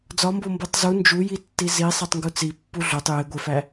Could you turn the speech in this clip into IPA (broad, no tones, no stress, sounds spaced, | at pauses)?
d͡z ɒ m b o m b o tˤ z u n d͡ʒ u j i tː i z i sˤ e tˤ ŋ ɡ u t͡s i pː u ɮ o tˤ j e ɡʷ e f æ